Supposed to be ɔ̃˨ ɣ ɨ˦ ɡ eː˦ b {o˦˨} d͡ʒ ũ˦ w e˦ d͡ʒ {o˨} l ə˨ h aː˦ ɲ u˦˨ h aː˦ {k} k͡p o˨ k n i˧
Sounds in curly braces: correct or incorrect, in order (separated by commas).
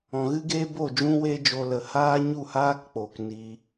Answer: correct, incorrect, correct